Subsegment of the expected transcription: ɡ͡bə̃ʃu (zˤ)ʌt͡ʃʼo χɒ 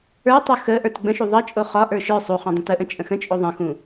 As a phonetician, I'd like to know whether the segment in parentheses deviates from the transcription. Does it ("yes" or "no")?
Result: yes